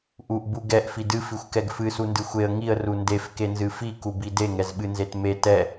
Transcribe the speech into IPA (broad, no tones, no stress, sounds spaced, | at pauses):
ʔ u ʔ b u ɡ ɛ ʔ f i d ɨ f i xʷ k ɛ ɡ f ɨ s u n d ɨ xʷ e ə̯ ŋ i ə̯ r u n d e f k e n z ɨ f i k u b i d e ŋ ɛ z ɓ ɨ n z e t m e t ɛ